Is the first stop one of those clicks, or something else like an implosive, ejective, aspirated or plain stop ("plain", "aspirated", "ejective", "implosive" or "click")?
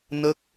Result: plain